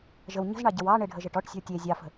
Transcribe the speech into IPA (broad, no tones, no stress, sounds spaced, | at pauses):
ʒ ə w ɲ ə̤ z ɳ ɑ ɟ ə w ɑ ɳ e ɖʱ ə ʒ ə ʈ ɔ ʈ sʲ ə̤ w tʲ e zʲ ɑ f ə̤